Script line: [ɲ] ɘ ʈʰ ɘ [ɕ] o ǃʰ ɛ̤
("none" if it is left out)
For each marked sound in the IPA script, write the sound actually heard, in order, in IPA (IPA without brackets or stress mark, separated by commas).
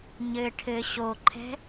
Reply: ɲ, ɕ